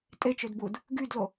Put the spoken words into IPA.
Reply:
tʼ e t͡ʃ ø d b u d | ɡ y d l o

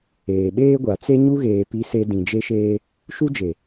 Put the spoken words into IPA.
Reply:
eː˨ ɓ eː˦ ɡʷ a˨ t͡s e˦ ɲ u˦ ɣ eː˨ p i˦ s e˦ d ĩ˨ d͡ʒ e˦ ʃ eː˦ | ʃ u˦ d͡ʒ e˨

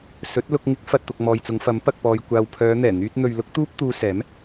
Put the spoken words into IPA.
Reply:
s ɵ˨˥ t̚ l ʊ˧ k̚ ŋ ɪ˨˥ k̚ f ɐ˨ t̚ t̪ ʊ˨ k̚ m ɔː˨ j t͡s ʊ˨˧ ŋ f ɐ˨˥ m p ɐ˨ k̚ p ɔː˨ j kʷ aː˨ w pʰ œː˨˧ n̪ ɛː˨˩ n̪ yː˧ t̚ n̪ ɵ˨ ɥ l ʊ˥ k̚ t̪ uː˥ p̚ t̪ uː˧ s ɛː˨˥ m

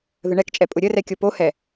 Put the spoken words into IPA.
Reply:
ð ə ɳ ɛ k t͡ʃʼ ɛ pʼ ʊ ɾʲ ə r ɛ kʲ o p o h ɛ

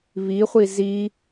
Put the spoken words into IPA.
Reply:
β i χʷ i z i

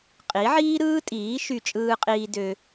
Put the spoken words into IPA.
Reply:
qʼ i˨˦ ʕ iː˦ ɾ ɯː˦ tʼ iː˨˦ ʃ y˧ t͡ʃʼ ɯː˧ qʼ iː˧ d ø˧

